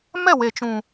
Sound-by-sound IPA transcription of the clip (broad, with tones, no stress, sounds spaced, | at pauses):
m ɛ˦˨ w e˨ t͡ʃ ũ˨